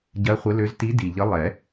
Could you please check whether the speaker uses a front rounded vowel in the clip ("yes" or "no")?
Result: yes